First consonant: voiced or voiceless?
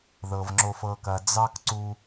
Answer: voiced